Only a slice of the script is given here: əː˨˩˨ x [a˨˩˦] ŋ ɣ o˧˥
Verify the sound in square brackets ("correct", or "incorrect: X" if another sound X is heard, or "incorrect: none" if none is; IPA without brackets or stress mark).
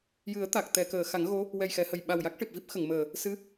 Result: correct